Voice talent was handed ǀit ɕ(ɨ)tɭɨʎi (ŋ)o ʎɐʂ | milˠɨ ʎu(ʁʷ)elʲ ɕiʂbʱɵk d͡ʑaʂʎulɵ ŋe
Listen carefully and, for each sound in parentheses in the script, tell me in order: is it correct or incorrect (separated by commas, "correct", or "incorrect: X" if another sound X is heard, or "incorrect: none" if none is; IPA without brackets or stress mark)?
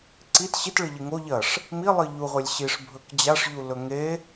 incorrect: i, correct, correct